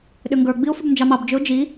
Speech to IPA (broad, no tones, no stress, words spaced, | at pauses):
ɗʏŋɡə˞ɡ͡biʊ̯ fʏbnd͡ʒɑmɑbd͡ʒʏʊ̯ d͡ʒi